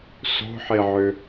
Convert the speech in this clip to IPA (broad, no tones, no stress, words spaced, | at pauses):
so̤ħeʕø